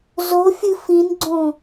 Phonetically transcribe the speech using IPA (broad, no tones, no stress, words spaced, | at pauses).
zofʲɨ fĩnɡ͡ǀõ